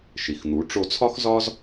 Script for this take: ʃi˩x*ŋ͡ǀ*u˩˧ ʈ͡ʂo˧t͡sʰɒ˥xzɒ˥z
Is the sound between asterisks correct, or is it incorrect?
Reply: incorrect